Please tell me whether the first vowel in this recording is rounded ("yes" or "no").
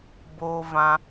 yes